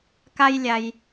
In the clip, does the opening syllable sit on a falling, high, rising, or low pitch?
high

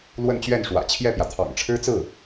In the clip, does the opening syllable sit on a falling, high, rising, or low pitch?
falling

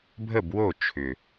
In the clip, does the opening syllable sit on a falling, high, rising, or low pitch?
falling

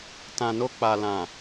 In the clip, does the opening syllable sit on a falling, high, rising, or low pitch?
low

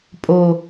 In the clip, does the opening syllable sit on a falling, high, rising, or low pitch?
low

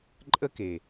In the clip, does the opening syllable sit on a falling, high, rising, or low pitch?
high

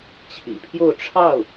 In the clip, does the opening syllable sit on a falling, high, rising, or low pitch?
low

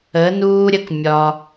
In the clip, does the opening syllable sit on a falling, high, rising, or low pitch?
rising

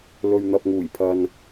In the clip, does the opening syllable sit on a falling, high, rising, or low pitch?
low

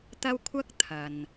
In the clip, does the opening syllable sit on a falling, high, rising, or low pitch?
high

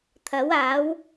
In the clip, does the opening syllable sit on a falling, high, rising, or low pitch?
rising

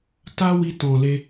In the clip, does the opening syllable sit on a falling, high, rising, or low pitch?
high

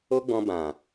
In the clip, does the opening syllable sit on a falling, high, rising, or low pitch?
high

